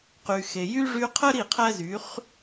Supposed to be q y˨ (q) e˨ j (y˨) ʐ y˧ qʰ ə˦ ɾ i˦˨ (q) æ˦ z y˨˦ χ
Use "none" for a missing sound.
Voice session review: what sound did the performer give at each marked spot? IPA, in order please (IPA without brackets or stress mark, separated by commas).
x, y˦, qʰ